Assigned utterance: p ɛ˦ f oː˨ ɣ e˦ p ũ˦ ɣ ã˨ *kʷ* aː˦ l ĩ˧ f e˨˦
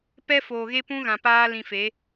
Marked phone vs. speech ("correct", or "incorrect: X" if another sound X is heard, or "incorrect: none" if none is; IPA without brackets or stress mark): incorrect: p